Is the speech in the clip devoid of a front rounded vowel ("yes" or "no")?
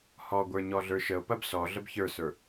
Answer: yes